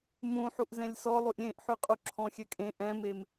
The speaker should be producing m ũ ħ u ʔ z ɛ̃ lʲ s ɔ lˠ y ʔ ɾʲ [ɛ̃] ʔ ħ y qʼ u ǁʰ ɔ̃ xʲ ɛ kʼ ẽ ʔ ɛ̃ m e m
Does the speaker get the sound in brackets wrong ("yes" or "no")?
yes